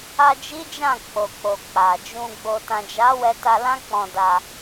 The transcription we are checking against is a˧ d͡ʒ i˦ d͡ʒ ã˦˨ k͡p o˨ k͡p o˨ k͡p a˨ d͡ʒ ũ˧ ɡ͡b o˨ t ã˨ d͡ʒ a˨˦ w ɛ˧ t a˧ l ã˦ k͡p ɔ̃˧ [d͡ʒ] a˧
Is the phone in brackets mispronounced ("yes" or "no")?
yes